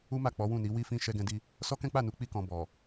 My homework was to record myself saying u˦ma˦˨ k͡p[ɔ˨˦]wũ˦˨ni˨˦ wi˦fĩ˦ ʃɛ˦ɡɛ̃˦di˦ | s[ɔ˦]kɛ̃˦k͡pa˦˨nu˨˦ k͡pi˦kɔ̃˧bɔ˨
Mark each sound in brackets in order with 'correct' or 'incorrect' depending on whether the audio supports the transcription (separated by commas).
correct, correct